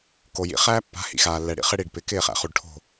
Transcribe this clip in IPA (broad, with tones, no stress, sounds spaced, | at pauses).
k o˨ j ḭ˨ χ æː˦ pː a̤˨˦ h ḭ˨ x aː˨ lː ɛ˨ ɽ ḭ˨ χ ɪ˦ ɽ i˨ ɖ p ɪ˨˦ k ɪː˦˨ χ æ̰˨ χ u˨ ɖ ʈʰ o̤˦˨